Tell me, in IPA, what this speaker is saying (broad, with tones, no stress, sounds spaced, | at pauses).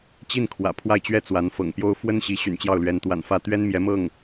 t͡ɕ i˥˩ n kʰ w ä̰˨˩ pʰ w a˥˩ ɪ̯ t͡ɕ ɥ ɛ˥ t͡s w a˧˥ n f ɤ̰˨˩ ŋ p j o˥ ʊ̯ f w ə˥ n ɕ i˧˥ ɕ y̰˨˩ n t͡ɕ j ɑ˥˩ ʊ̯ l ɥ ɛ˧˥ n t̪ w a̰˨˩ n f ä˥˩ t̪ ɥ ɛ˥ n m j ɛ˧˥ m ɤ˥˩ ŋ